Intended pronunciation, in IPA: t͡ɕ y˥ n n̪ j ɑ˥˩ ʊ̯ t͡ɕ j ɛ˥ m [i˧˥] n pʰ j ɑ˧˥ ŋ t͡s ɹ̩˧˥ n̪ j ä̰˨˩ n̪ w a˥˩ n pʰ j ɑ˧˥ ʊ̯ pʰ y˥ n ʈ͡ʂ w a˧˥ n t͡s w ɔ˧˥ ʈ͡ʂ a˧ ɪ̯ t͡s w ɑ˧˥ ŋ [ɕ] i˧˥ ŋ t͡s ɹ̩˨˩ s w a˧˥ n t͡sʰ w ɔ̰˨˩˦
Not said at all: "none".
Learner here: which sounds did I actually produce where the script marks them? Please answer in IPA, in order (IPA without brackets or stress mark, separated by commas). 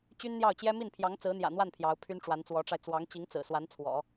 i˥˩, t͡ɕ